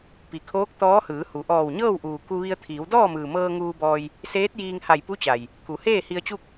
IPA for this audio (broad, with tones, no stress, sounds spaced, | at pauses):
p i˩ kʰ oː˧˥ k̚ t̪ ɔː˧˥ h ɯː˩˧ h u˩˧ ʔ ɔː˧˩ w ɲ ɤː˥˨ w ʔ uː˩ k u˧ ʋ i˧ ə̯ t̪ʰ iː˩˧ w d ɔː˥˨ m ɯː˩ m ɤː˧ ŋ uː˧ b ɔː˧ j | s eː˧˥ t̚ j iː˧ ŋ h a˧˩ j p u˧˥ t͡ɕ a˩ j | k u˩˧ h eː˥˨ h i˧ ə̯ t͡ɕ u˥˨ k̚